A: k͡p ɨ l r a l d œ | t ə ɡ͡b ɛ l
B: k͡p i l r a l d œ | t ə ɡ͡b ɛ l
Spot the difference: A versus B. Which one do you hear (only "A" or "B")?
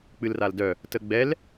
A